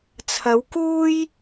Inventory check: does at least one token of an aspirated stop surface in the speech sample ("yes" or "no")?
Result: yes